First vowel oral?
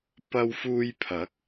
yes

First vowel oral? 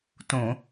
no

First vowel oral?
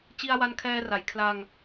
yes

